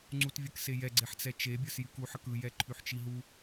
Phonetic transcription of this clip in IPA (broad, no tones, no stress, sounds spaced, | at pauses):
ŋ͡ǀ u t vʲ ə k s e j ɛ ɡ͡ǀ e ħ t͡s ɛ t͡ʃ e bʲ ə˞ s j y k u ħ ə k ɯ j ɛ ǃʰ y ħ t͡ʃ i ɦ u